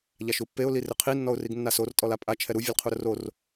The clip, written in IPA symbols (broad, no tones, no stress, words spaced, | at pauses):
ʎaʃupːeʊ̯ lirɪqʰi nːɔʊ̯riɡnːasor tʼɔlapʼa t͡ʃʰɛɾu vʲelqʰuɾʊror